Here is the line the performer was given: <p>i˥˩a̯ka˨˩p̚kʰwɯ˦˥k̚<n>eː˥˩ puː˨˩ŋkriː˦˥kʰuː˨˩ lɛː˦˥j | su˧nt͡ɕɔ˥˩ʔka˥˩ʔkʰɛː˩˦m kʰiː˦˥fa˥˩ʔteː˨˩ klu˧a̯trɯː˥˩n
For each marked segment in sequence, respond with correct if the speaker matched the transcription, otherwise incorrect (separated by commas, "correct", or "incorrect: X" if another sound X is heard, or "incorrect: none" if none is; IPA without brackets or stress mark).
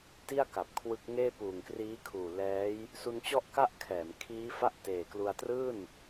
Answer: incorrect: t, incorrect: ŋ